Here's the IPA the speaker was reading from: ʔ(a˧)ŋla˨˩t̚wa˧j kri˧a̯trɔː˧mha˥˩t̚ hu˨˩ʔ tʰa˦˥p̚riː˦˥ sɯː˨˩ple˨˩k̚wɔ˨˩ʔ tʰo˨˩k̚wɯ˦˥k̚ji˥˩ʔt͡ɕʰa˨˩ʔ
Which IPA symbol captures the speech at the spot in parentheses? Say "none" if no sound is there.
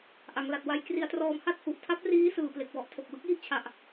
a˩˦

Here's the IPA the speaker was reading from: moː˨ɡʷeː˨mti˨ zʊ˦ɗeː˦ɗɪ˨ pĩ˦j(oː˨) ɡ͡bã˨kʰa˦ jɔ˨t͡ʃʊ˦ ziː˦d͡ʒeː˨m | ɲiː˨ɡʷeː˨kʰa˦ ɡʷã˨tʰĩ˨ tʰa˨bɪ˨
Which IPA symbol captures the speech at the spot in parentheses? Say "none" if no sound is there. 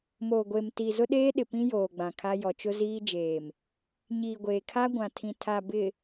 oː˨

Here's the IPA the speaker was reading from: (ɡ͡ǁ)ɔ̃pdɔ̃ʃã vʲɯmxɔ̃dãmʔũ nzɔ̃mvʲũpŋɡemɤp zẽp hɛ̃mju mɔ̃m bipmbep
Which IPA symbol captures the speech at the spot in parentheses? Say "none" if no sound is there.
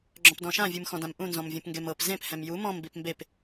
ɡ͡ǁ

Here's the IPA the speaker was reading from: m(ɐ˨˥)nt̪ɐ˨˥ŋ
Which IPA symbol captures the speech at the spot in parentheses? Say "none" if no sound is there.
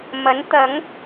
ɐ˨˥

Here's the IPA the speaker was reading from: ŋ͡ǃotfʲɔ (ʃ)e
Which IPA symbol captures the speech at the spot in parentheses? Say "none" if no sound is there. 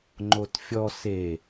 s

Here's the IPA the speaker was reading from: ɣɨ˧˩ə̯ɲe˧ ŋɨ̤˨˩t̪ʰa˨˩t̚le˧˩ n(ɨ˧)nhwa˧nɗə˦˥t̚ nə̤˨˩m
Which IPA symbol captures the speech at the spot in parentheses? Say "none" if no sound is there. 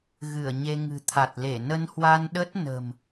ə˧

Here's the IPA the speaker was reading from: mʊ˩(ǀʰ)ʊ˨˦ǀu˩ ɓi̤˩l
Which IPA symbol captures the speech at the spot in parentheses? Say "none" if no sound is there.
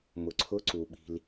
ǀʰ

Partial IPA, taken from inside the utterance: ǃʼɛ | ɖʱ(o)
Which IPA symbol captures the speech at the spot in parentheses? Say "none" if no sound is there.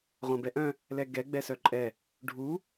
u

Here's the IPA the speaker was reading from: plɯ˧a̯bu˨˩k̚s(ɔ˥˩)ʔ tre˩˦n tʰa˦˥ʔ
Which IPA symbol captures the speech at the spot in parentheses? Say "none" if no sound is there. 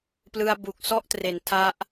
ɔ˥˩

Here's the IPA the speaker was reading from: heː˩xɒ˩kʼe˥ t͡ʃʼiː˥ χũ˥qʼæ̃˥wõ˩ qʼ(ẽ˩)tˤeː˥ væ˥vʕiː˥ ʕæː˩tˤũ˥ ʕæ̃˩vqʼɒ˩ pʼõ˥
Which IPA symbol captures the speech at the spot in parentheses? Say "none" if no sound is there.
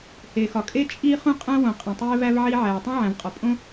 ẽ˩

